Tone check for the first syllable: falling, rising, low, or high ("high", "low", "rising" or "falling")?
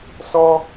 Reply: high